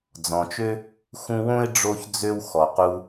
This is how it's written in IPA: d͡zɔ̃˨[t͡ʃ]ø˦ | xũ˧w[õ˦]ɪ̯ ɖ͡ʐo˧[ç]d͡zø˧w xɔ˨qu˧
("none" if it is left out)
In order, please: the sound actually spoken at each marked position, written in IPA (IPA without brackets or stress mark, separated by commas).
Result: t͡ʃ, õ˦, ç